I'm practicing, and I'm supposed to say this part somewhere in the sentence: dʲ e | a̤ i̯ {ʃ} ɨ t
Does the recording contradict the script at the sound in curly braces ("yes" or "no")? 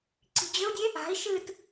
no